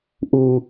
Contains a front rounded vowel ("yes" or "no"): no